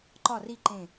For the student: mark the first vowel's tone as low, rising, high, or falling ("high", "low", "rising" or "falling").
falling